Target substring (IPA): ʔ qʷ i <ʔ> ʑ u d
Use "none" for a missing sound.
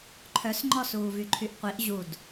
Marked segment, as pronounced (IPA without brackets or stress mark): ʔ